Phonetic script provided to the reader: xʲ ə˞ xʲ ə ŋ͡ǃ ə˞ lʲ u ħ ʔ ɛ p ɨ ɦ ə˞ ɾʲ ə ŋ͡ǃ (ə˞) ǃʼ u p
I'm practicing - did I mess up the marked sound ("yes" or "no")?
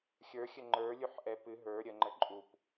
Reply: yes